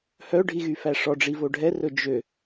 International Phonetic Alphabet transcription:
h œ ɖʱ i ɣ y f æ ʂ ɔ ɖ͡ʐ i v o ɖʱ ɛ r ɵ d͡ʒ ø

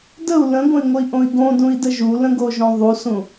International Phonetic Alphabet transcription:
d ə u̯ l ə̃ ɡʷ ə̃ i̯ ŋʷ ə i̯ ʔ õ i̯ ɡ õ d ũ i̯ d ə ʒ u l ə̃ ɡ o ʒ õ ðˤ u s ũ

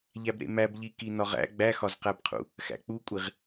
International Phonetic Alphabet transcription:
ʎ æ b ɾ ḛ m æ b ʎ i k i n ɒ ʁ æ̰ ɡ͡b æ x ɒ z q æ b qʰ ṵ | x æ̰ k͡p u kʷʼ i ʁ

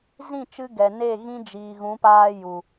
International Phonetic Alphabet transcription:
z ĩ˦˨ t͡ʃ ɨ˧ ɡ ɛ˨ n e˦˨ ɣ ĩ˦ d͡ʒ iː˨ ɣ ũ˨˦ p aː˦ j u˨

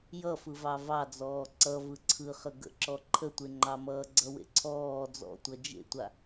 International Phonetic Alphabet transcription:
j ʌ f ɯ v ɑ v ɑ d͡z ɔː ǀ ʌ v ɯ ǀʰ ɯ χ ə ɡ ə̰ ǁ ɔ ǃʰ ə tʷ e ŋ͡ǃ ɑ m ʌː ɡ͡ǀ ʌ w ḛ ǀʰ ɔː d͡z ɔ̰ tʷ ʌ d͡ʒ ḛ tʷ a

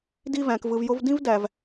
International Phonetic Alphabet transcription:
d i˧ v æ̃˨ k v ɯ˨ v j o˧ v d ĩ˦ v d æ˨ v

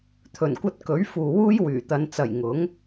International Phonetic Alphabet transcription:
t̪ʰ ɵ˨˩ n kʷ ɐ˧ t̚ k ɵ˨˥ ɥ f uː˨ w uː˥ j w yː˨˩ t̪ ɐ˨˧ n t͡s ɐ˨˩ j ŋ ʊ˨˥ ŋ

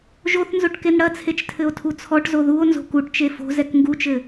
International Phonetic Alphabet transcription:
ʒ o θ n z o ʈ k e n ɽ ɐ t͡sʰ e t͡ʃ tʰ ɘ o̯ tʰ u t͡sʰ ɔ ʈ z o ð u o̯ n z o̤ k u ʈ t͡ʃ e f o̤ z ɛ k ŋ ɡ u t͡ʃ ɘ

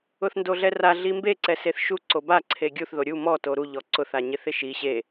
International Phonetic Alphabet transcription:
ʊ θ n d o ɮ ɛ r a ɮ i m b e ǀ ɛ s e θ ʃ u ǀ o b a ǀʰ e ɡʲ u θ ð o ɾʲ u m ɔ t o ɾ u ʎ ɔ ǀ ʊ θ a ɲ ɪ θ ɪ ʃ i ɕ e

